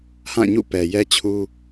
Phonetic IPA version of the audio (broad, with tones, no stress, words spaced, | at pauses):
hã˦˨ ɲṵ˦˨pɛ˨jɛ˦ t͡ɕʰu˦